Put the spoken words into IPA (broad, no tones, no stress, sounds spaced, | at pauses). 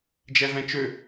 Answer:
d͡ʒ ɛ v ɛ̃ t͡ʃ ø